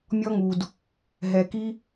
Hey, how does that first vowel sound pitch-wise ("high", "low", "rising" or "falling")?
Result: high